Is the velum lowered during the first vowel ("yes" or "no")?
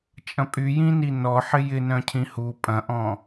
yes